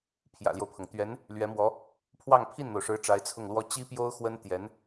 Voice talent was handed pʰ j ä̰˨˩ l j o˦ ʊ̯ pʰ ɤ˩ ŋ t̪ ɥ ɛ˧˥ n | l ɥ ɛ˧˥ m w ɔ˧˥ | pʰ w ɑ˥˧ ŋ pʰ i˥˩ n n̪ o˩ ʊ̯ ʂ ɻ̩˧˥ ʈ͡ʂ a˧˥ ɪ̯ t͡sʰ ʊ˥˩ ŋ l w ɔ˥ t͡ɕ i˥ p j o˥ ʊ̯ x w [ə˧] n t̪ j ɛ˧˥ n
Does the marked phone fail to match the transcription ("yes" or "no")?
yes